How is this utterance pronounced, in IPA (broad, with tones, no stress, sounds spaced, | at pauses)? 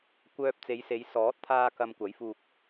kʷ œː˧ p̚ t͡s e˨˧ j s e˨˧ j s ɔː˨˥ t̚ t̪ʰ aː˧ k ɐ˨ m kʷ ɐ˨˥ j f uː˧ k̚